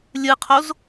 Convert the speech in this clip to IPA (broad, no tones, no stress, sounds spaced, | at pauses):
lʲ ɯ qʰ o z